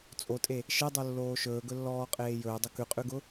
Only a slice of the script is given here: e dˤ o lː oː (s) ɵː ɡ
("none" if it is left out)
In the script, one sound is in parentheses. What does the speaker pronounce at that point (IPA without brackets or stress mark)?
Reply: ʃ